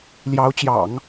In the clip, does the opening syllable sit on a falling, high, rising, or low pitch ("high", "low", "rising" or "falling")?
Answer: rising